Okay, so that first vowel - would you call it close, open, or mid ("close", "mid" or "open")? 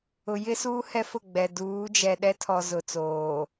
close